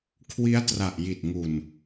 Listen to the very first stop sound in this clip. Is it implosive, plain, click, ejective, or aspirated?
aspirated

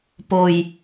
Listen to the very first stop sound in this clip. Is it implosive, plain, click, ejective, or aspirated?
plain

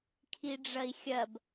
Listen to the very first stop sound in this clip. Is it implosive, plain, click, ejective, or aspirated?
aspirated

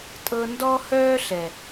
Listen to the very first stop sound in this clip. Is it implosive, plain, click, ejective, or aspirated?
ejective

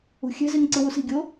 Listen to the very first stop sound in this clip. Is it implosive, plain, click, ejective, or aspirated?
click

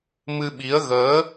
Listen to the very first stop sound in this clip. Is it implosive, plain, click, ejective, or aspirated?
implosive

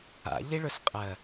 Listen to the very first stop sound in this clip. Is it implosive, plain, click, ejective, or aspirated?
ejective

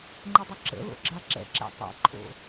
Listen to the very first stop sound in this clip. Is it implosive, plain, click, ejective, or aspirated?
click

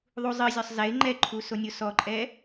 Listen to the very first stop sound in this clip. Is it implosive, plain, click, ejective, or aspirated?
click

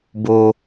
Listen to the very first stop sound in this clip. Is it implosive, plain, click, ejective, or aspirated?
plain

